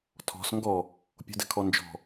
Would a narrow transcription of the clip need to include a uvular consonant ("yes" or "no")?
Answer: no